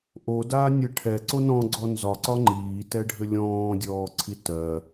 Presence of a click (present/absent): present